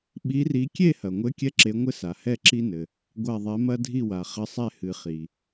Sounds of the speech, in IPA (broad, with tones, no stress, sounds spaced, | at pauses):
ɓ i˨˦ r i˨˦ kʲ e˦˨ h ɐ˩ ŋʷ ɘ˨˦ kʲ ɛ˦ ǁ e˨˦ ŋʷ ɘ˦ s a˩ h ɛ˦˨ ǁ i˦ n ɘ˩ | ɡʷ a˦˨ ðˤ ɛ˨˦ m ɐ˦ dʱ i˦˨ w a˩ χ ɘ˨˦ sˤ ɛ˦˨ h ɨ˩ χ i˩